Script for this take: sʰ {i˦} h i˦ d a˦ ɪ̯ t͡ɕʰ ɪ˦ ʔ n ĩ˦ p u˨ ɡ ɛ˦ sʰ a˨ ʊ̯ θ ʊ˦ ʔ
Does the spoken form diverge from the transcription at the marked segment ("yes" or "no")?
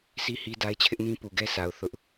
no